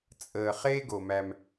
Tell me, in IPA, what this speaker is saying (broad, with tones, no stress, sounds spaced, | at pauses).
t͡sʼ əː˨ χ eː˦ ɡ o˩ m æ˨ m